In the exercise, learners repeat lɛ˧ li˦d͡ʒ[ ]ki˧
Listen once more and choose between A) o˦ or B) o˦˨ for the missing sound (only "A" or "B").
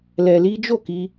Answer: B